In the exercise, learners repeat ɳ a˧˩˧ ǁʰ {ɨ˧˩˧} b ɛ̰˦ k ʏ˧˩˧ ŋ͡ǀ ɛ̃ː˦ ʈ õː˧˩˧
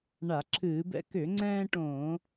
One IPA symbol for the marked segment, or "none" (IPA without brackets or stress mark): ɨː˧˩˧